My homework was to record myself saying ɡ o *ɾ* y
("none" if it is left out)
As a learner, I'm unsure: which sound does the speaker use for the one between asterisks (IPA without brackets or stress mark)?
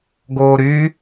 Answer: ɾ